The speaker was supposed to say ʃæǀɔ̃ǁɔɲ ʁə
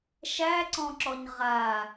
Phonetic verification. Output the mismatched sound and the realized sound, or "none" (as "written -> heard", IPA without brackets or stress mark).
ə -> a